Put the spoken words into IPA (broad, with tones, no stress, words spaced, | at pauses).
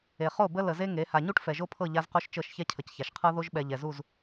e˨χo˦˨bə˦ lə˨ze˦ ŋe˨˦ ha˨ɲu˦ʈ fɛ˨ʒo˦pʰɤ˦˨ ʎa˦zqo˦ʃt͡ʃɤ˦˨ʃ çɛ˦cʰə˨cça˨ʃqʰɤ˦ ðo˦ʒɓɛ˨ʎɛ˨zu˦˨z